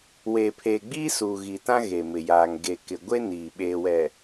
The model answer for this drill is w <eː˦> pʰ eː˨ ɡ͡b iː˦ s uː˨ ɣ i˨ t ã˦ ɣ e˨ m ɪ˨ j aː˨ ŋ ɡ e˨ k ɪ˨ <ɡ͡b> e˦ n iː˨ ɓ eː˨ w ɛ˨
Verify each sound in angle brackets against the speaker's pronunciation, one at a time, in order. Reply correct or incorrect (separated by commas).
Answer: incorrect, incorrect